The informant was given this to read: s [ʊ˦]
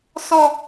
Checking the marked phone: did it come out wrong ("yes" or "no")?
yes